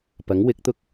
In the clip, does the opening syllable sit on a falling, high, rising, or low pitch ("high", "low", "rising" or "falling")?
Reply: rising